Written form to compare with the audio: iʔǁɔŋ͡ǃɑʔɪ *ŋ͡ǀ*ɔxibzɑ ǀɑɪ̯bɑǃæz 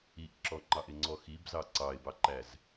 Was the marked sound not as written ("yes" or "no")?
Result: no